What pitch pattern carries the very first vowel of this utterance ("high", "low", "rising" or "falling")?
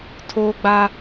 high